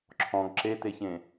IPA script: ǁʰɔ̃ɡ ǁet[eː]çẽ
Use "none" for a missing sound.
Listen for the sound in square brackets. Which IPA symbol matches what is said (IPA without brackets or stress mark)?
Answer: e